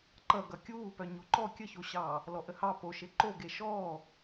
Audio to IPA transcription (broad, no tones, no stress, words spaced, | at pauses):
ǃʌ ɡʌkʲuːpœ ɲoǃɔ kʲəçoɕɑː | lɔʔəhɑ poʃe ǃoɡe ʃɔː